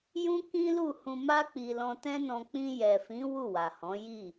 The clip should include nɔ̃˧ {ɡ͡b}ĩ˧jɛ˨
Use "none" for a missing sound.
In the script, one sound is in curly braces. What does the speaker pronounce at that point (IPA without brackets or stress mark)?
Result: k͡p